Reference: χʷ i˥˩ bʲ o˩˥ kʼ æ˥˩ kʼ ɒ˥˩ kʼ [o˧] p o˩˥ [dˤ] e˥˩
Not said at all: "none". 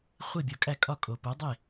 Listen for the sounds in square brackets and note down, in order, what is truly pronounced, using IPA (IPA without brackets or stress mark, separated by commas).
o˩, dˤ